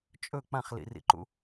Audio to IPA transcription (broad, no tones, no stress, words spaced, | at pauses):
t͡ʃʼɵ k͡pãχlḭrḭǃṵ